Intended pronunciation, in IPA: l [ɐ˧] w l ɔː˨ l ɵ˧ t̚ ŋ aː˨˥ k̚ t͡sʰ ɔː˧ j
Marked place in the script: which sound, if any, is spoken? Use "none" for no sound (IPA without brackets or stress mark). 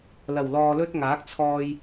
ɐ˨˩